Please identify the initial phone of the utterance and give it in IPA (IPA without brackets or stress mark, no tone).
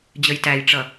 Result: d͡ʑ